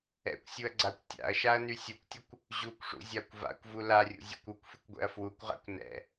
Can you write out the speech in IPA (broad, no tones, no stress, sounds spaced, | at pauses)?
ɛ̰ kʷ sʲ u ɐ̯ ɡ͡ǀ a kʷ tʲ a̰ ɐ̯ ʃ a ɐ̯ n y sʲ u kʷ tʲ ʊ kʷ | ʑ u kʷ ʂ ṵ zʲ a kʷ v a̰ kʷ v u l a rʲ ṵ zʲ ṵ kʷ u kʷ f y kʷ ɡʷ ɛ̰ ɐ̯ f w u kʷ ʁ a̰ kʷ n ɛ̰